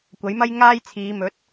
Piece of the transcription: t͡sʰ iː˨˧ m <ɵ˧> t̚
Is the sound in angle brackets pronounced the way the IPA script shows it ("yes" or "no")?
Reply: no